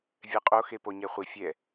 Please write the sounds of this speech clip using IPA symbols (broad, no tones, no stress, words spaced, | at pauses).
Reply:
vʲɛqʼo xepoɲɛχʷi fʲɛ